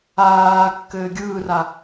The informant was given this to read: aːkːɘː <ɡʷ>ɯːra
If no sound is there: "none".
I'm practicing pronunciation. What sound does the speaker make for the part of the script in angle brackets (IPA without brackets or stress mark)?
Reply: ɡʲ